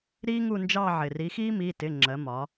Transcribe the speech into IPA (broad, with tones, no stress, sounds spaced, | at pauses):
ɾ iː˦ ŋ u˦˨ n d͡ʒ ɑ˦˨ ʕ ɪ˩ r i˨˥ x iː˦ m i˩˧˩ t ɪ˩˧˩ ŋ͡ǁ ɜ˩˧ m ɒ˩˧